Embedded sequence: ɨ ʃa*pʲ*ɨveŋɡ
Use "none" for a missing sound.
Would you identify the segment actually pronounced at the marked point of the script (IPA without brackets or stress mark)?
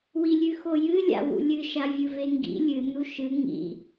vʲ